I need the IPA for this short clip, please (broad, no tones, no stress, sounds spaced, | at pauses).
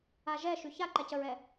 a ʒ ɛ ʃ y ç a ǃ ɛ c ə ɹ ɛ